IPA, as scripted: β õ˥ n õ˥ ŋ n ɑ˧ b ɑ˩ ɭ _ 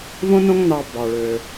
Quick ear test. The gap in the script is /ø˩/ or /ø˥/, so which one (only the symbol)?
ø˩